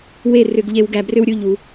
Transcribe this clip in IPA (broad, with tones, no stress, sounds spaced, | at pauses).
w e˥˧ r ʏ˧ ɡ ʎ e˧ w ɡ æ˧ b r ʏ˥ w ɾʲ u˥˧ ʎ u˩˧